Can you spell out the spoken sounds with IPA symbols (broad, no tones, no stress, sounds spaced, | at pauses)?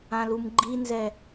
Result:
ã l u m ɡ͡ǃ i n z ɛ